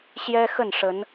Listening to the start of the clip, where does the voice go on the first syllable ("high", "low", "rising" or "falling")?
high